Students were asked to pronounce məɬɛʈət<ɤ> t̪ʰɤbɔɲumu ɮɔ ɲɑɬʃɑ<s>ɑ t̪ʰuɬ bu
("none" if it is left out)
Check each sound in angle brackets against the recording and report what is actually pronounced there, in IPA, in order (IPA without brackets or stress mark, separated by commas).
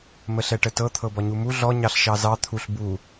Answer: ɤ, z